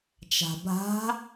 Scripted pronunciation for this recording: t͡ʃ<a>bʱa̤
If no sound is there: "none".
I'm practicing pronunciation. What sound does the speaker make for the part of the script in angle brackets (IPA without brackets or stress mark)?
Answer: a̤